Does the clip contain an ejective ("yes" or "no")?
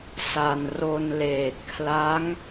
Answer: no